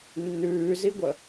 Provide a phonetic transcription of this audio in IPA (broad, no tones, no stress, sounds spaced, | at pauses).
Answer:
nː ʉː z i ɡʷ ə